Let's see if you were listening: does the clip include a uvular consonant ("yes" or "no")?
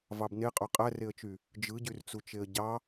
yes